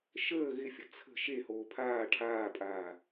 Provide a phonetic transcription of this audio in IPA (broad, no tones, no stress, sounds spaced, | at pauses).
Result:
ʃ əː ɣ ɪ fʲ ə t͡sʰ ə̤ ʃ e h oː pʰ aː ʈʰ aː pʼ aː